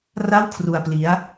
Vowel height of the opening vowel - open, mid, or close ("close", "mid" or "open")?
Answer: open